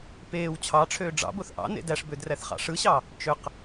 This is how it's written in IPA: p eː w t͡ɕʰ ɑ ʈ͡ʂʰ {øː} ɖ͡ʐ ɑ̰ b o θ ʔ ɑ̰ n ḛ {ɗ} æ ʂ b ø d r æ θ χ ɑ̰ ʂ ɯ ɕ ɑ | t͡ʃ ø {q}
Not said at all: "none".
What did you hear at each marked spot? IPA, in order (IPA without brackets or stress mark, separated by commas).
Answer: øː, d, q